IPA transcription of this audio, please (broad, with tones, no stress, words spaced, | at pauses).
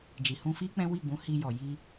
d͡ʒi˨hũ˧fi˦ k͡pɛ̃˦wi˦˨ɡ͡bũ˨˦ hi˧jɔ˨ji˧